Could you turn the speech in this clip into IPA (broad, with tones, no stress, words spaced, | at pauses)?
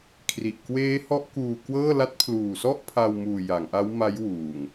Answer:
kʰri˨˩ʔ kweː˦˥hɔ˦˥ʔ kuː˧kwɤː˥˩ la˦˥t̚pʰluː˨˩sɔ˥˩ʔ pʰa˧wmuː˨˩ ja˩˦ŋʔa˦˥wma˦˥jwuː˨˩ŋ